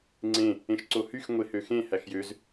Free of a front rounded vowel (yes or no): no